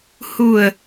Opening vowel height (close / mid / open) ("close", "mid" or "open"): close